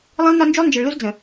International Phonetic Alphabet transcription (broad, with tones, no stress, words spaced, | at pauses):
lˠĩ˦lˠnɒ˦nd͡ʒu˦lˠ nd͡ʒə˨ɭlu˦z d͡zə̃˨